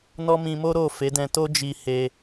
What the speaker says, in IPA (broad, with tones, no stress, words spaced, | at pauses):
nɔ˦mĩ˧mo˦ ɾo˦˨ fe˨˦dɛ̃˧to˦ d͡ʒi˧ he˧